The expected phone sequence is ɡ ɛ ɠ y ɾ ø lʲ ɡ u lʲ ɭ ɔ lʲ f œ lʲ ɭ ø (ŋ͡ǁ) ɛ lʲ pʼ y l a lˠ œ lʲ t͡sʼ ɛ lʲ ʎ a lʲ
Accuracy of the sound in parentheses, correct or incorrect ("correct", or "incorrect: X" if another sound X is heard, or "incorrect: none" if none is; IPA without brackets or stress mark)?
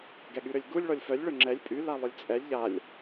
correct